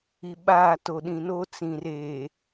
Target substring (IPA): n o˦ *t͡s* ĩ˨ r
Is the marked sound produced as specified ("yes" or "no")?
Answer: yes